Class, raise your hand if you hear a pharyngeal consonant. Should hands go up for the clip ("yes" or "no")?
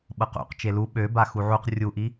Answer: yes